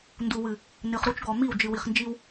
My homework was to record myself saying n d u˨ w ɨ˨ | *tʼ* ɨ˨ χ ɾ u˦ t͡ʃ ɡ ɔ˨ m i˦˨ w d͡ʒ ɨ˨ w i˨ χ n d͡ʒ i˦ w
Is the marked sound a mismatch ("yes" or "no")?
yes